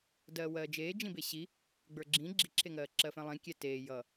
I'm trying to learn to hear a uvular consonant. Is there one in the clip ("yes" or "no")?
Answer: no